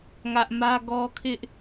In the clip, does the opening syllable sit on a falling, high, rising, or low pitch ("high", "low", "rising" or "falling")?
high